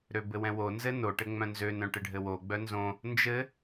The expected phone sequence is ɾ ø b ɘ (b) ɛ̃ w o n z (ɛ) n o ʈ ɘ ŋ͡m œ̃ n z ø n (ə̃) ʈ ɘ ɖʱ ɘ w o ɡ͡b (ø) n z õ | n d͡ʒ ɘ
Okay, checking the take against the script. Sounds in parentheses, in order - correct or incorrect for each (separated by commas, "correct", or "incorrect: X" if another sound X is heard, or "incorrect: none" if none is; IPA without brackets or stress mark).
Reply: incorrect: w, incorrect: ɘ, incorrect: œ̃, incorrect: œ